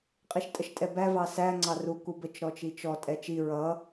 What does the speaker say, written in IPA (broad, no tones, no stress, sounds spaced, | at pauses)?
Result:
qʼ i ʃ tʼ ə ʃ tʼ ɛ b æ v ɑ s æ ŋ͡ǀ ɑ r u k u b ə t͡ʃ ɾ ɔ t͡ʃ i t͡ʃ ɔ tʼ ɛ t͡ʃ i ɹ ʌ